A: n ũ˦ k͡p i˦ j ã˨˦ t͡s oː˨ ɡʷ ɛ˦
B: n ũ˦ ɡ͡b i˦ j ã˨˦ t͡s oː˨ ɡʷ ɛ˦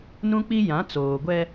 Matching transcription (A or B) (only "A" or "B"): A